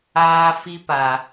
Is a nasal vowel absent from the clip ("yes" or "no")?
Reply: yes